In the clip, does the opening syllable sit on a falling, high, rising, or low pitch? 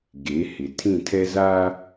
rising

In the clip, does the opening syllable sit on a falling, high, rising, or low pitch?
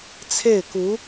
falling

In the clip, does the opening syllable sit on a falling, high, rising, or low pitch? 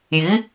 rising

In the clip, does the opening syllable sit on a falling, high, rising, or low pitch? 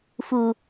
low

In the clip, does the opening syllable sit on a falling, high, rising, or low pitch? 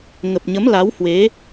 low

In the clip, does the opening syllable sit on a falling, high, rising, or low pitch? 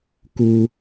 high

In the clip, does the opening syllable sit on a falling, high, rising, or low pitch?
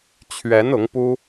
rising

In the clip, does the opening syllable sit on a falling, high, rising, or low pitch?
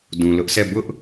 low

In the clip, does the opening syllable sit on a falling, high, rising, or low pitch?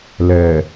low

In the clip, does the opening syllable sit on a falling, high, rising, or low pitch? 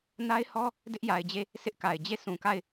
high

